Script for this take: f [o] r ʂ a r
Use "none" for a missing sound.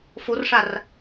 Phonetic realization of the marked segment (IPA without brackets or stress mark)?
o